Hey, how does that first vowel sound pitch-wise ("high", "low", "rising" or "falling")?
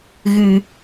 low